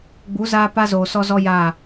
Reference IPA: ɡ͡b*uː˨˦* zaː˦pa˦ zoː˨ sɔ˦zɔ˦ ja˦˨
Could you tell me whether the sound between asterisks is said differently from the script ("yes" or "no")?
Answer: yes